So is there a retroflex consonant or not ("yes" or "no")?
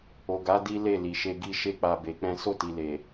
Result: no